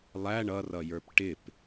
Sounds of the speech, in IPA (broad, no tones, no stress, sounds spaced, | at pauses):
lˠ æ ɳ ʌ r ʌ j ə˞ p ʈ ɪ p